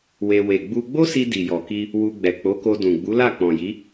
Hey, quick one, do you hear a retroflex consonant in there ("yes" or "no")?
no